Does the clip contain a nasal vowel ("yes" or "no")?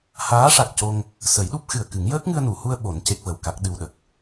no